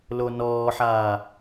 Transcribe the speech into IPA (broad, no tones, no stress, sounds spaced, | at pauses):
l o n ɔː ħ aː